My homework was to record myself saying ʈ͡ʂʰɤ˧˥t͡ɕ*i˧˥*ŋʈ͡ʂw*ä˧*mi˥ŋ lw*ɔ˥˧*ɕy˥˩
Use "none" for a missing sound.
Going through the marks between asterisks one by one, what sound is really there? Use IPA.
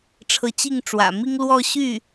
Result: i˥˩, ä̰˨˩, ɔ˥˧

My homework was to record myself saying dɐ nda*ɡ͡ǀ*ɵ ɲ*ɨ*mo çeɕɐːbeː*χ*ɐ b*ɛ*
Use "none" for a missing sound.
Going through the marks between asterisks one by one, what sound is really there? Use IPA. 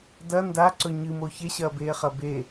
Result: ǀ, ɨ, χ, e

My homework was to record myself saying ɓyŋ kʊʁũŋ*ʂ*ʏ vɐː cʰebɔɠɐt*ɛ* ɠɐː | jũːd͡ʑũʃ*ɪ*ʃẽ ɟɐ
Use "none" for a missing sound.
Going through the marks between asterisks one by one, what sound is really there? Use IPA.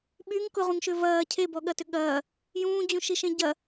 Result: ʃ, ʏ, i

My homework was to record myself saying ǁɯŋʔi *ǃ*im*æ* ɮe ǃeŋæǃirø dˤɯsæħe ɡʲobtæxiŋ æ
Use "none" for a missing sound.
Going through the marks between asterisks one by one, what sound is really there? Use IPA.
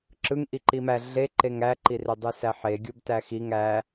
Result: ǃ, æ

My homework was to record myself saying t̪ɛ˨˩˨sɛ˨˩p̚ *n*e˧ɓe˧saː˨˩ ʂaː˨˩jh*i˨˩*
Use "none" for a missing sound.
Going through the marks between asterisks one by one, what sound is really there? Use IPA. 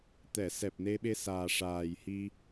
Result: n, i˧

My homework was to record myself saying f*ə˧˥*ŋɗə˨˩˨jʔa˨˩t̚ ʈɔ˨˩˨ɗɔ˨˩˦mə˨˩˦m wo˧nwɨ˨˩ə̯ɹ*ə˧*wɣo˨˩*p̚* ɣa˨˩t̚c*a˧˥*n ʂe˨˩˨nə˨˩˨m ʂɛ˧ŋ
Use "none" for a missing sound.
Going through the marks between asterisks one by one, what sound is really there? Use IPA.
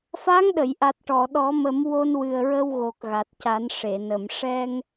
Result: a˧˥, ə˧, k̚, a˨˩˦

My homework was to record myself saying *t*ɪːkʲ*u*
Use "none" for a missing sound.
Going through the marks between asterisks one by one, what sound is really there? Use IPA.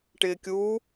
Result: ʈ, uː

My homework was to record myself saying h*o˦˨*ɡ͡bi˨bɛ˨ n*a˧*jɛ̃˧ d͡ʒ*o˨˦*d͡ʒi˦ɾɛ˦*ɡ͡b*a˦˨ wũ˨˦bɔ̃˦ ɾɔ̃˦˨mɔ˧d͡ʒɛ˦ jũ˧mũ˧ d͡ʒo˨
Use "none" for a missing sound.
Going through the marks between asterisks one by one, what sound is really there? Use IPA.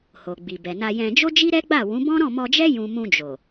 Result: o˨, a˧, o˦, ɡ͡b

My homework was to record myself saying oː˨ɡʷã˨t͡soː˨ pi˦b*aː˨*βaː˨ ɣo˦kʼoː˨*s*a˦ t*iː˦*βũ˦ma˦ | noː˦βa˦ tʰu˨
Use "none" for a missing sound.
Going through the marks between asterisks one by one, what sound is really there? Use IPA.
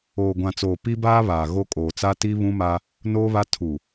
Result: aː˦, t͡s, i˦

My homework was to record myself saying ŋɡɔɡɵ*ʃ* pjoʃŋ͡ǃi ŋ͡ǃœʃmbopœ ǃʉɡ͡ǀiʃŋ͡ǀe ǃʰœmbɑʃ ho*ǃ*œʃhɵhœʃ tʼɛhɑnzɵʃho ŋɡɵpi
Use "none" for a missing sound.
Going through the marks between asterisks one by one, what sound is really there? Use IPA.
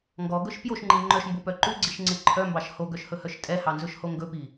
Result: ʃ, ɡ

